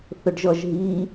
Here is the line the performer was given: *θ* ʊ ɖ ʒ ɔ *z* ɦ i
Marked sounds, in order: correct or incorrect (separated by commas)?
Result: correct, incorrect